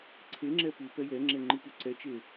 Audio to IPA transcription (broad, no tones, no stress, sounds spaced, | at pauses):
ǀʰ e ŋ͡ǁ ɛ p u p ɛ j ɛ ŋ͡ǁ ɛ ŋ͡ǃ ɯ p u ǀ ɛ t͡ʃ e